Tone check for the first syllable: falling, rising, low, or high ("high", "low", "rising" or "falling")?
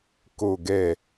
low